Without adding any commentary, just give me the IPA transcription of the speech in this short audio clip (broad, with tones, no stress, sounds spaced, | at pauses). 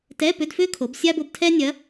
t ɛ˧˥˧ p ʏ˧˥˧ d f ʏː˥ kʰ o˩˧ b sʲ a˥ b o˧ b tʰ ɛː˥ nʲ ɐ˧˥